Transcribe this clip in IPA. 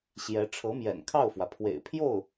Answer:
ɕ j ɛ˧˥ ʈ͡ʂʰ ɤ˧˥ m j ɛ̰˨˩ n kʰ ɑ˥˩ ʊ̯ f w ä˩ pʰ w ḛ˨˩ ɪ̯ pʰ j o˥˩ ʊ̯

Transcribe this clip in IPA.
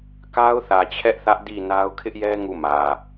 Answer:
k a˦ ʊ̯ θ ä˨ t͡ɕʰ ɛ˦ ʔ θ ä˦ ʔ d i˦˨ n a˦ ʊ̯ kʰ ɪ˦ ʔ j ɛ˦ ŋ u˦˨ m ä˨

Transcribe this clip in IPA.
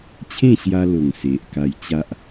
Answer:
t͡ɕʰ ẽ˥˧ ɕ j a˧ l o˨˩ ŋ s e˨ ʔ k a˧ j t͡ɕ a˦ ʔ

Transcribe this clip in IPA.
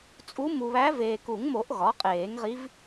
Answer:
t͡sʼ u˧˥ m u˨ β æ˧˥ v eː˨ k u˨˩˦ ŋ m o˨˩˦ ʔ ɣ ɒ˩˥ qʼ eː˨˩˦ ŋ ʁ i˧˥ v

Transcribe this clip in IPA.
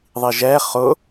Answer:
ðˤ i ʒ ɛ χ ʊ

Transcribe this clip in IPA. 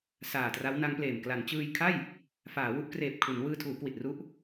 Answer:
s aː˨˩ t r a˦˥ w n a˦˥ ŋ p l eː˨˩ m k l a˩˦ n t͡ɕ ɯː˧ j kʰ a˥˩ j | f aː˩˦ w u˦˥ ʔ k r eː˨˩ p̚ kʰ u˩˦ n w ɯː˧ tʰ uː˩˦ k w i˨˩ t̚ r u˦˥ ʔ

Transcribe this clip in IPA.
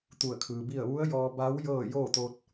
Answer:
t̪ u˧˩ ə̯ kʰ ɯː˩ b i˥˨ ə̯ ʋ u˧˥ ə̯ j ɔː˧ b a˧˥ w j ɤː˥˨ j oː˥˨ t̪ o˧ t̚

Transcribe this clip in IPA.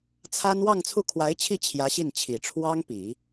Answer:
t͡sʰ a˥ n w ɑ˥˧ ŋ t͡sʰ u˥˩ kʰ w a˧˥ ɪ̯ t͡ɕʰ i˥˩ t͡ɕʰ j ä˧˥ ɕ i˥˩ n t͡ɕʰ i˨˩ ʈ͡ʂʰ w ɑ˥ ŋ p i˨˩˦

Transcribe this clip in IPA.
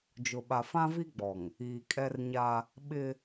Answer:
d͡ʒ ʊ˨ ɓ a˨ f ã˦ v i˦ ɡ͡b ɔ˨ ŋ | iː˨ kʼ ɛ˦ r ɲ a˦ | ɓ ɪ˦

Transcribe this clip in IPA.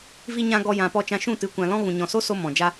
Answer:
v i˧ ɲ ã˧ ɡ ɔ˧ j ã˨ p ɔ˧ t͡ʃ ã˧ ʃ ũ˦˨ t ɨ˨˦ kʷ ã˨ l ɔ̃˦ ɣ ũ˨ ɲ ɔ̃˨ s o˦ s o˧ m ɔ̃˨ d͡ʒ a˦

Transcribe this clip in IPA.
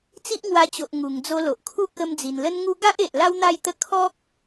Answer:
t͡s i˦ ʔ ŋ w a˧ t͡ɕ o˨ ʔ ŋ u˨˩ ŋ d͡z o˧ l o˨ ʔ kʰ u˦ k ə˧ m d͡z i˨˩ n l ə˦ n ŋ u˦ ɡ a˦ ʔ e˨ ʔ l a˦ w n̪ a˥˧ j t̪ ə˥˧ kʰ ɔ˦ k̚

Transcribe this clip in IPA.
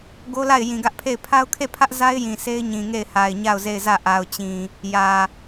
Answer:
ɡ o˦ l a˦˨ ɪ̯ j ĩ˨ ɡ ä˦ ʔ pʰ e˦˨ ɪ̯ pʰ a˦ ʊ̯ kʰ e˦˨ pʰ ä˦ ʔ z a˦ ɪ̯ j ĩ˨ sʰ e˦ ɪ̯ ɲ ĩ˨ ŋ e˦˨ ɪ̯ h a˨ ɪ̯ ɲ a˦˨ ʊ̯ z e˦˨ ɪ̯ z ä˦˨ ʔ a˨ ʊ̯ t͡ɕ ĩ˨ | j ä˨

